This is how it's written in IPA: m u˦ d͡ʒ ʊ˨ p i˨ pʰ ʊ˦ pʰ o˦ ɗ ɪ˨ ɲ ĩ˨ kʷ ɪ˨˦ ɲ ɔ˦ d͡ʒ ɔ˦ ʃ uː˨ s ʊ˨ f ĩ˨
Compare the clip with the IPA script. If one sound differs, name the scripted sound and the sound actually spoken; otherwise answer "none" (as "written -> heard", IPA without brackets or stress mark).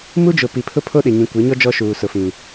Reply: none